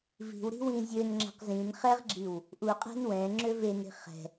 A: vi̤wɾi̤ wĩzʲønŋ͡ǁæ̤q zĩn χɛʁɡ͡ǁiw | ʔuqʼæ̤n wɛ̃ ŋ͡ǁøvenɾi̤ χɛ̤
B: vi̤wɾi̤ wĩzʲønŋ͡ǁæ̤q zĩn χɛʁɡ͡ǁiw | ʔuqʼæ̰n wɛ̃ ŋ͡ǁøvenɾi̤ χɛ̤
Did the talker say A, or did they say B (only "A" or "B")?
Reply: A